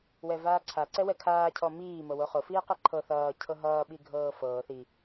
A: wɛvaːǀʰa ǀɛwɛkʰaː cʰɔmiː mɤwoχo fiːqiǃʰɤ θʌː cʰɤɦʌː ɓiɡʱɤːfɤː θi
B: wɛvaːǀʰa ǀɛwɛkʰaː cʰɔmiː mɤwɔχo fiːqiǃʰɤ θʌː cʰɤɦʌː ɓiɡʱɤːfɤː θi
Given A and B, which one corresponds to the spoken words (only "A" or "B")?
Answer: A